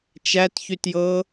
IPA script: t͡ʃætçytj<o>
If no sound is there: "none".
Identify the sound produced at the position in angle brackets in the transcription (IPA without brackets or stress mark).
ɤ